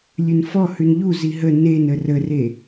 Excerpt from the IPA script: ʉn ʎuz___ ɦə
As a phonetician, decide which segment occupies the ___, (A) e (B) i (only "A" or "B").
B